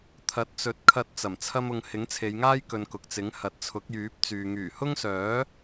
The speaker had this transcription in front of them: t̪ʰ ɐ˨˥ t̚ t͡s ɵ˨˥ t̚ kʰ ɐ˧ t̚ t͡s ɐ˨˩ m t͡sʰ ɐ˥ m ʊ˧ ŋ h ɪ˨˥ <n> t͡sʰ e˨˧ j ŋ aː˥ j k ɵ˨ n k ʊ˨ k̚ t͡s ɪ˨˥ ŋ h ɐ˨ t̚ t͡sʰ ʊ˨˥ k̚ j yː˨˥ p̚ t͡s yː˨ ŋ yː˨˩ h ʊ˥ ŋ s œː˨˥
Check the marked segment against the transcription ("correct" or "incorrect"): incorrect